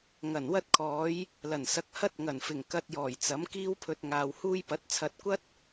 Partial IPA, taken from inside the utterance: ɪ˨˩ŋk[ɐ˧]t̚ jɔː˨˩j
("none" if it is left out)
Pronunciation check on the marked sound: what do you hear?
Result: ɐ˧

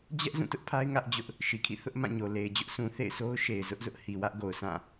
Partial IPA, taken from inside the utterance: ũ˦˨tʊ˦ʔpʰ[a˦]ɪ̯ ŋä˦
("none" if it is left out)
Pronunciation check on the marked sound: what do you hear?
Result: a˦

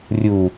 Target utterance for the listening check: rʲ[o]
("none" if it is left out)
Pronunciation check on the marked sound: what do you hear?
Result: u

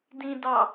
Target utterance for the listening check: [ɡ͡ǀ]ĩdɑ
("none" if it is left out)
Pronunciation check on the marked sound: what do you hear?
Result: d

